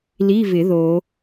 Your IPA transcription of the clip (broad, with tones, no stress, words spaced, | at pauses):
li˧˥˧vɪ˨˩˦ ðo˨˩˦